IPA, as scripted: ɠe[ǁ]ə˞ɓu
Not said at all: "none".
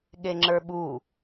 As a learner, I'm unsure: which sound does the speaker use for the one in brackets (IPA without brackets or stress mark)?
ŋ͡ǁ